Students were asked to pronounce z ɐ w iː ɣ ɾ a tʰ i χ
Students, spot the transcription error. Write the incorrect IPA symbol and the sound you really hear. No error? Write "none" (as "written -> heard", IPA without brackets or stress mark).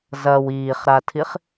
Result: ɣ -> χ